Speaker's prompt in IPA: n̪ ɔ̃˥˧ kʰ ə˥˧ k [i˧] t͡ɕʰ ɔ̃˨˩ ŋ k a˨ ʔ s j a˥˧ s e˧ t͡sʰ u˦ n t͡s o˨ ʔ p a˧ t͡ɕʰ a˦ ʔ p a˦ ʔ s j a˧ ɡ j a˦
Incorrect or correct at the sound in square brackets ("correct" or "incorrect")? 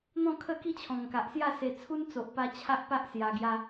incorrect